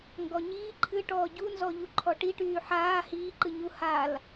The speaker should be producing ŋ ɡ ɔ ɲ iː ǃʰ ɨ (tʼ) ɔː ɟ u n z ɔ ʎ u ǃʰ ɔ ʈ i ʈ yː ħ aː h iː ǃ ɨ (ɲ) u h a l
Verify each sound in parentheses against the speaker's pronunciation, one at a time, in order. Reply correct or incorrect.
incorrect, correct

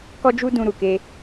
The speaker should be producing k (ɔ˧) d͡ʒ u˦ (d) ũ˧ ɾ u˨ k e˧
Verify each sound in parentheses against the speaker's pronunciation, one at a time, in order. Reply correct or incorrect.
incorrect, correct

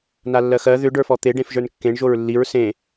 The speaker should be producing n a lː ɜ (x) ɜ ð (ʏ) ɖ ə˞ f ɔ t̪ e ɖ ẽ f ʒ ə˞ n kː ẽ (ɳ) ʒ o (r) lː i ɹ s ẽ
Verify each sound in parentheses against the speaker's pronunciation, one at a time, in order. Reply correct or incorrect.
correct, correct, correct, incorrect

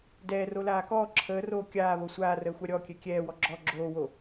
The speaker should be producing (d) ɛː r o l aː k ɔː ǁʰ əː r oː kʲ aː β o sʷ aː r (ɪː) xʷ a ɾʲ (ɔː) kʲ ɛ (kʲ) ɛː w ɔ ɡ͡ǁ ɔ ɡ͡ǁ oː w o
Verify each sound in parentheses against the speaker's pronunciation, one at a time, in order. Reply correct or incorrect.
correct, incorrect, incorrect, correct

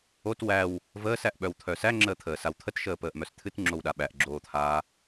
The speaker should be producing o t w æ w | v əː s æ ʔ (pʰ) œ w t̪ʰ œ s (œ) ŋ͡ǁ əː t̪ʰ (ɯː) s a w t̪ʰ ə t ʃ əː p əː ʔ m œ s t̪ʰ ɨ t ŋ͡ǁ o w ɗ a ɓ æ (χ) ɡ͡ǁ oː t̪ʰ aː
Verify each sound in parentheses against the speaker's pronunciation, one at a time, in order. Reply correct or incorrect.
incorrect, incorrect, incorrect, incorrect

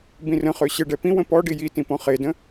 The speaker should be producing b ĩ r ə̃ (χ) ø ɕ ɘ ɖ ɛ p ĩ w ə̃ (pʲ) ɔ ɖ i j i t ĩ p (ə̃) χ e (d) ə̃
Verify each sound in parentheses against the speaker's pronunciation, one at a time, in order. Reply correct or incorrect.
correct, incorrect, incorrect, correct

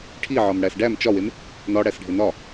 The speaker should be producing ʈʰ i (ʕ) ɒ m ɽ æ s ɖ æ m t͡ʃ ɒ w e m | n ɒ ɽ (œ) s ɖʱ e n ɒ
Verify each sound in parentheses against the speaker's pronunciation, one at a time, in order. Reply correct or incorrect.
correct, incorrect

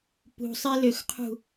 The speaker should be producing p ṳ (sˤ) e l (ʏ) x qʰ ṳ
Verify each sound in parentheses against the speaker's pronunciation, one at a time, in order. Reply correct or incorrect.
correct, correct

